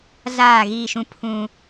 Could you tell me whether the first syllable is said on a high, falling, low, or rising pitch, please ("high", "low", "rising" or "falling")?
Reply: falling